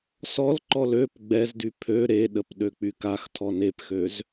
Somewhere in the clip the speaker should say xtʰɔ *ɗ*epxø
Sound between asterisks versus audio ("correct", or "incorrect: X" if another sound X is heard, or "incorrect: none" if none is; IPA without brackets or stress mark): incorrect: n